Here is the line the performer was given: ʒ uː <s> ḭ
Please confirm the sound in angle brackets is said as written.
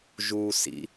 yes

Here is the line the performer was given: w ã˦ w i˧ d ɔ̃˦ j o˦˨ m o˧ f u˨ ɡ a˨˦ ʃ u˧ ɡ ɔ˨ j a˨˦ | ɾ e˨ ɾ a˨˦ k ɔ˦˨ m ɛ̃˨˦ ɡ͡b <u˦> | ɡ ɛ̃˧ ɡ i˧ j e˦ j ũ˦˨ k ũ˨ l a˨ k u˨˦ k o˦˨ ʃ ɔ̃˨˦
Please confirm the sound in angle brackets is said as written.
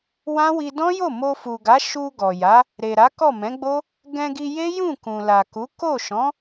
no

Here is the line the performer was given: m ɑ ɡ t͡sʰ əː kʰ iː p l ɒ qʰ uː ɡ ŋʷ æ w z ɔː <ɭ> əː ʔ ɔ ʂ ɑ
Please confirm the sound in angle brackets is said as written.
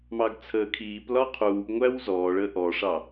yes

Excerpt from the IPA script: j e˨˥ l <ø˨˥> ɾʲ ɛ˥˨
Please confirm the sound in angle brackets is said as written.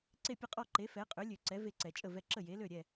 no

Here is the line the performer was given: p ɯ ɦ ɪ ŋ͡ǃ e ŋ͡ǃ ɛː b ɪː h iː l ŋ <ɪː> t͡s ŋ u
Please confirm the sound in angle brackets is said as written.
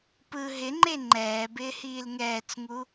no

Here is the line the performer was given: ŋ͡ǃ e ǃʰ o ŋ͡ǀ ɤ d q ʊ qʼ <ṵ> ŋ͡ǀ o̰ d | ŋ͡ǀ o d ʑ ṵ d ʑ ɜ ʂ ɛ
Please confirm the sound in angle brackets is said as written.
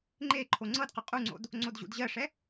no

